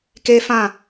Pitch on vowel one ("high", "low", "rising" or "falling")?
high